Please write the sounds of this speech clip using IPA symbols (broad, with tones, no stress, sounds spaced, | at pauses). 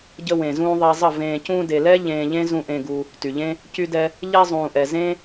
ɟ ə˧ w ẽ˨ z ũː˧ ðˤ e˧ zˤ ə˦˨ v ẽː˨ c ũː˧ d e˨ l ɛ˦ ʎ ẽː˧ ʎ ẽ˦ z ũ˧ ʔ ẽ˧ ɡ u˧ | t y˨ ʎ ẽ˦ | c y˧ d ɛ˧ | ʎ ɛ˧ zˤ ũː˨ ʔ ɛ˨ z ẽ˦